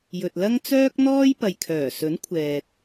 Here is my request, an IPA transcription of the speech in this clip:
j ɵ˨ t̚ l ɐ˥ ŋ t͡s œː˥ k̚ n̪ ɔː˥ j p ɐ˨ j kʰ œː˨˩ s ɵ˨˥ n kʷʰ ɛː˨ t̚

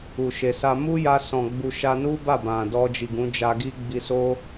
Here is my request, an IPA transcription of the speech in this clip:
u˨ ʃ e˨ s a˧ m u˦ j a˧ s ɔ̃˨ ɡ͡b u˧ ʃ a˧ n u˦ b a˦˨ b ã˨ d ɔ˧ d͡ʒ i˨ ɡ ũ˨˦ d͡ʒ a˧ ɡ i˦ ɡ͡b i˧ s o˦

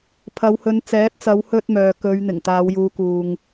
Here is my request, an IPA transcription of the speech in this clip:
pʰ ɐ˨˧ w h ɵ˨˧ n t͡s ɛː˨˥ t̚ t͡s ɐ˨˧ w h ɵ˧ t̚ m œː˨ k ɵ˨˧ ɥ n̪ ɪ˨˩ ŋ t̪ aː˨˧ w j uː˨˧ k uː˨ ŋ

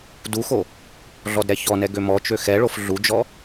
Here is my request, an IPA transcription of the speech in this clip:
d u x o | ɮ ɔ d ɾ ɛ ç ɔ n ɛ ɡ ø m ɔ t͡ʃ ø x ɛ ɭ o f ɮ u d͡ʒ ɔ

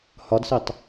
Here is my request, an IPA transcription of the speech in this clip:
h ɒ d s i tˤ

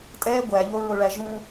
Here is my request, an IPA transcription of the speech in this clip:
tʼ ɛ ɡʷ æ ʎ o ɹ o ɭ æ ʒ ũ

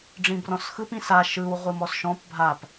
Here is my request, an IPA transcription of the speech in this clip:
ɖ͡ʐ ĩ b r ɔ̃ s x ɯ p ĩ s a ʃ ɯ w ʁʷ ɨ m ɔ s ʃ ɔ̃ p bʱ a p

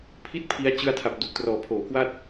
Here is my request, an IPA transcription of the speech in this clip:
pʰ i˥˩ t̚ pʰ i˦˥ a̯ t͡ɕ ɯ˧ a̯ tʰ a˨˩ p̚ d u˨˩ k̚ t r ɔː˨˩ pʰ oː˨˩ k w a˥˩ t̚

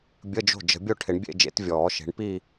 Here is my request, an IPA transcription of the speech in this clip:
bʲ ə˧˥˧ d͡ʒ o̤˥˩ d͡ʒ ə̤˨˩˦ bʲ o˥˩ ʈʰ ɪ˨˩˦ ɳ bʲ ḛ˥˧ d͡ʒ ḛ˨˥ t vʲ ɔː˨˩˦ ʃ e̤˨˥ ɳ p i˥˧

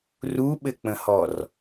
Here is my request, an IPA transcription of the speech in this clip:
r u ɓ ɘ k͡p ə̃ h ɔ r

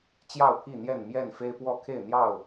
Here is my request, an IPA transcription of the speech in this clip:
t͡ɕ j ɑ˥˨ ʊ̯ pʰ i˥˨ n̪ j ɛ˥˨ n m j ɛ˥˨ n f e˦ ɪ̯ p w ɔ˥˨ kʰ e˥˨ ɪ̯ n̪ j ɑ˥˨ ʊ̯

